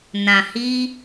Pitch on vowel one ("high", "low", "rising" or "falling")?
low